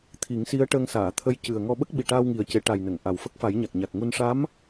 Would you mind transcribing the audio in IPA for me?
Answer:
t̪ʰ i˨˩˦ ŋ s i˧˥ ə̯ ʈ əː˧ ŋ s aː˨˩˨ t̪ʰ ə˧˥ j c ɨ˨˩ ə̯ ŋ ɔ˧ ɓ ə˦˥ k̚ ɓ i˨˩ ʈ aː˧ w ŋ i˨˩ ə̯ c e˨˩˦ ʈ a˨˩ j n ə˨˩˨ ŋ ʔ a˨˩ w f ə˦˥ k̚ f a˨˩˦ j ɲ a˨˩ k̚ ɲ a˨˩ k̚ ŋ u˧ n ʂ a˧˥ m

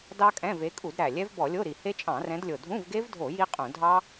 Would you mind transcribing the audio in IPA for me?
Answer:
d ɑ˦˥ kʼ ɛ̃˧˥˧ v e˨˦ kʼ u˧˩˧ d ɾ æ˨˩ lʲ ɛ˦˥ v b ɔ˧˩˧ lʲ o˧˥˧ ɾ i˨˩ h e˦˥ t͡ʃʼ ɑ̃˧˩˧ r ɛ̃˨˦ d lʲ o˨˩ dʱ ũ˧˥˧ v ɡ e˦˥ v dʱ o˧˩˧ j i˦˥ qʼ ũ˧˩˧ dʱ ɑ˦˥

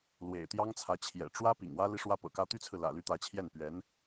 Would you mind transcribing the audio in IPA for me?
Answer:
l w ḛ˨˩ ɪ̯ t̪ j ɑ˥ ŋ t͡sʰ ä˧˥ t͡ɕʰ j ɛ̰˨˩ ʈ͡ʂ w ä˥ p ḭ˨˩ ŋ w ä˥ l i˥ ʂ w ä˥ p ɤ̰˨˩ k ä˥ t̪ y˥ t͡sʰ ɹ̩˨ l ä̰˨˩ l y˥ t̪ ä˧˥ t͡ɕʰ j ɛ˥˩ n p ɥ ɛ˧˥ n

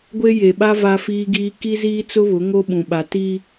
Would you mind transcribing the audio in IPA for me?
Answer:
ɡʷ e˦ j e˨ ɓ a˦ v a˦ f iː˦ ɡ iː˦ k i˦ z iː˦ t͡s ʊ˦ β ʊ˨˦ ŋ o˦ ɓ ũ˨ ɓ a˨ t i˦

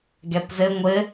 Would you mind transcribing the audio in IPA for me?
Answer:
ɡ ɛ p z ɘ ŋʷ ɘ

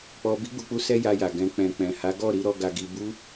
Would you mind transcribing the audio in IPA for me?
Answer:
k͡p ɔ˧ b i˦ ɡ͡b u˧ k͡p u˦ s ɛ˦ j a˧ j a˨ ɡ ɛ̃˧ k͡p ɛ̃˨ k͡p ɛ̃˨ h a˨˦ ɡ ɔ˦˨ ɾ i˨˦ ɾ ɔ˧ ɡ a˧ ɡ i˧ b u˦

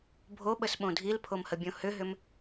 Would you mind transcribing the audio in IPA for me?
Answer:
bʱ o ɓ ə s ɓ õ dʱ i l pʰ o m h ə bʲ õ h ʏ ɦ ʏ m

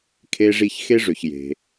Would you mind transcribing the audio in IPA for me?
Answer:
kʰ e˥ ʐ i˥ ç x e˥ ʐ ø˩ ç j e̤˩

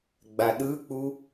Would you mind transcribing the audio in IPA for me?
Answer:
ɡ͡b a ɗ ɯ k͡p u

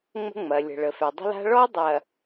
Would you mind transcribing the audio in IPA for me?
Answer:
ŋ͡m ə̤˦ ŋ͡m ɐ˨ lʲ ə̤˨ ɭ ə˨ f ɛ˨ dˤ ə̤˦ l a̤˦ ɭ ɔ˦ dˤ ɐ˨

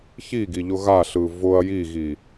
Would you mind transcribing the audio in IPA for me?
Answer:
ç i ɡ i ʎ ʊ ɣ a ɬ ɯ v ʊ ɐ̯ j i ɣ i

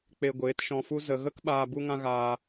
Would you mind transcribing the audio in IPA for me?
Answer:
k͡p e˧ ɡʷ eː˨˦ t ʃ ɔ̃˧ f u˦ z ə˧ ɣ ə˦ k ɓ aː˧ b u˦ ŋ ã˦ ɣ aː˧

